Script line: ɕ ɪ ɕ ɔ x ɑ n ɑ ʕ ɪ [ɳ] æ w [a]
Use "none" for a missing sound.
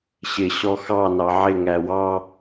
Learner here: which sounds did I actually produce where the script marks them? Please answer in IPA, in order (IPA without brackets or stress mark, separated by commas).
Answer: ŋ, ɑ